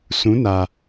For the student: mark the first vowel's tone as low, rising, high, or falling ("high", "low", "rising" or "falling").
rising